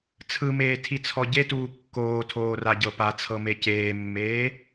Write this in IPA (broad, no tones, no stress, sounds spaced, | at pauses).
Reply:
t͡sʰ ɯ m eː tʰ i t͡sʰ ɔ ɟ e t uː kː oː tʰ oː r a ɟ ɤ p a t͡sʰ ɤ m e c eː mː eː